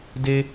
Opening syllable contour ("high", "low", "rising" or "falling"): high